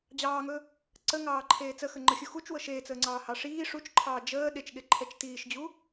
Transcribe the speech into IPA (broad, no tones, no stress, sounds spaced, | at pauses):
d͡ʑ ɑː ŋ ɵ | ǀ ə ŋ ɑː ǃʰ eː t͡s ə x ə ŋ͡ǃ ə xʲ u x u t͡ʃ w ɤ ʃ eː t͡s əː ŋ͡ǀ ɑː h ɑ ʂ iː ʂ u t͡ʃ ǃʰ ɑː d͡ʒ əː ɗ e t͡ʃ ɠ e ǃʰ ɛ t͡ʃ t iː ʃ d͡ʑ u